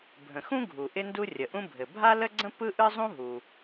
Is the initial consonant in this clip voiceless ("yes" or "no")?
no